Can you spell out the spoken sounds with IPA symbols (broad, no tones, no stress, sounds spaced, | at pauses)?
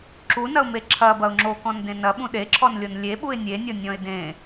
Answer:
ǁ u n ɐ ʊ̯ m e ǁʰ ɐ b ɐ ʊ̯ ŋ͡ǁ o k ɔ̃ n d ẽ n ɐ ɓ ũ ɗ e ǁʰ ɔ n lʲ o n lʲ e ɓ u ɪ̯ nʲ e nʲ ɔ nʲ ɔ̃ ɪ̯ d ẽ